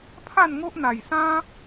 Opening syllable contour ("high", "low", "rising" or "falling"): falling